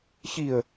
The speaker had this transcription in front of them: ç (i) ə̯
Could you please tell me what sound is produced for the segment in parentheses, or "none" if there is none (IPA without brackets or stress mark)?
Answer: i